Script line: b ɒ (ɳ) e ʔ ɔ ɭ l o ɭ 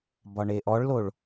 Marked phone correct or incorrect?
correct